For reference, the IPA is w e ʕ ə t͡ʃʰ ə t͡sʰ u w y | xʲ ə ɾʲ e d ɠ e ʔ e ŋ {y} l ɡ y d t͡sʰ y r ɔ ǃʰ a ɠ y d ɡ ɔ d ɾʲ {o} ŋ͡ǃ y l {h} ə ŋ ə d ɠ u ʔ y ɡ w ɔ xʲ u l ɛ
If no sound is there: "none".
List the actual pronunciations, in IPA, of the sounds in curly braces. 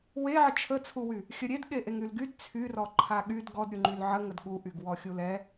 y, u, ʕ

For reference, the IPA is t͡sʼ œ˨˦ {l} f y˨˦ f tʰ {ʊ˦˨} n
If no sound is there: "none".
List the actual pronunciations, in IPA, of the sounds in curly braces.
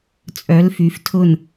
l, ʊ˦˨

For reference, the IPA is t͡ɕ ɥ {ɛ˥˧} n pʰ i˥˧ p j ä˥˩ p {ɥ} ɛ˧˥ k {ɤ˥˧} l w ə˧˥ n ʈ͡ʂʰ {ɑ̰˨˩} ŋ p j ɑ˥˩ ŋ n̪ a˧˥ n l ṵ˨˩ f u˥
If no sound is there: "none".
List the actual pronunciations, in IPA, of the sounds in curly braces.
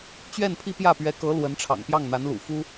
ɛ˥˧, ɥ, ɤ˧˥, ɑ̰˨˩

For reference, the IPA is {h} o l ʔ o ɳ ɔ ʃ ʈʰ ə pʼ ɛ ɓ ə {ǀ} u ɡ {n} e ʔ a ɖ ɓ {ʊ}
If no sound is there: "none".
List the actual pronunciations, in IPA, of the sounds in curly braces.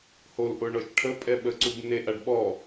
h, ǀ, n, ɔ

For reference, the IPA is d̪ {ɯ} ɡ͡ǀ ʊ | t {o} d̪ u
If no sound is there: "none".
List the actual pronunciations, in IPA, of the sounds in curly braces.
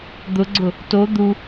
ʊ, o

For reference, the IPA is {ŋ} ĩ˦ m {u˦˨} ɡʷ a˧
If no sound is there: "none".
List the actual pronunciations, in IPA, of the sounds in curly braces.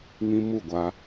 ŋ, u˦˨

